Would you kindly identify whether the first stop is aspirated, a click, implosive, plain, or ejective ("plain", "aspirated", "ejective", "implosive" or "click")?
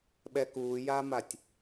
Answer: implosive